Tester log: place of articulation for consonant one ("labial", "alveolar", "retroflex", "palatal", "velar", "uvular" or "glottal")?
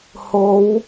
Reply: glottal